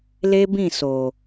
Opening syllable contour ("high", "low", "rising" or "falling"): high